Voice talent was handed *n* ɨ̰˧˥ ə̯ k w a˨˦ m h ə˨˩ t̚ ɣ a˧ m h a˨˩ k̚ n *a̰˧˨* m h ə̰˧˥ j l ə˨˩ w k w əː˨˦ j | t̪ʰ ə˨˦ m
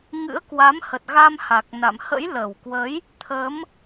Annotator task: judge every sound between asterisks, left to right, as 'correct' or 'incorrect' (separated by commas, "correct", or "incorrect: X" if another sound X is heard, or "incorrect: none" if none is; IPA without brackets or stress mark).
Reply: incorrect: ŋ, correct